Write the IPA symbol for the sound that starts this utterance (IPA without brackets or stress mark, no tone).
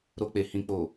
ɾ